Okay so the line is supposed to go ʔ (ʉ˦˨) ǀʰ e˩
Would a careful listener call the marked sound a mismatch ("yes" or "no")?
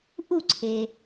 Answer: yes